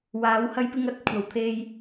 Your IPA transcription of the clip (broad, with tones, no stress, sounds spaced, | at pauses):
w aː˨˥ w h ɐ˥ j p ɪ˥ ŋ ɐ˥ t̚ kʷʰ ɐ˨˧ w t̪ʰ e˥ j